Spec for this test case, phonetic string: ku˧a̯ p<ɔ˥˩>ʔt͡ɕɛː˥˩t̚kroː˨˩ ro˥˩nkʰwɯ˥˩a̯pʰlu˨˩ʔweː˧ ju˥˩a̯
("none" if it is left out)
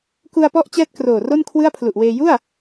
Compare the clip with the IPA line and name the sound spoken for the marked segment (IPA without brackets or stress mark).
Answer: ɔ˥˩